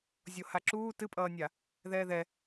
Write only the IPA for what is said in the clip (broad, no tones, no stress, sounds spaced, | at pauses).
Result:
zʲ o h a ǁ uː t ɨ pʼ ʌː nʲ a | ð ɛː ð ɛ